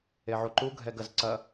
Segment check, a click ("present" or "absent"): present